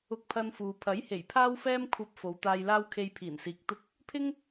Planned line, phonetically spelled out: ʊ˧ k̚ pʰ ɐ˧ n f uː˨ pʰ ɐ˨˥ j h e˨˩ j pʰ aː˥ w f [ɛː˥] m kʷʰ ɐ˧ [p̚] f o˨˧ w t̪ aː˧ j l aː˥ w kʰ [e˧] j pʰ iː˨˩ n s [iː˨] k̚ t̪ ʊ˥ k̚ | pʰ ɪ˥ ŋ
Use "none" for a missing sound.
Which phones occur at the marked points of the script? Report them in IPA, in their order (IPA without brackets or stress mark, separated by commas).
ɛː˥, p̚, e˧, iː˨